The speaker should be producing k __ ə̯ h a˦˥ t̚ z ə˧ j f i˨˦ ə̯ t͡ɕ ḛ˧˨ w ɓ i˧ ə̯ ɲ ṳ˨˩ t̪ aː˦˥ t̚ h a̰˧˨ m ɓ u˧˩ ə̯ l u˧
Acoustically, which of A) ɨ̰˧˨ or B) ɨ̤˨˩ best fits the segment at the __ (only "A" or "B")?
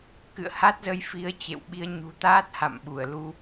A